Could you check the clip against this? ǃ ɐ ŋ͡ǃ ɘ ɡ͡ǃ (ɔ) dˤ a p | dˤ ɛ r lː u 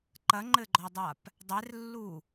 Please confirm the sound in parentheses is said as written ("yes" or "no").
yes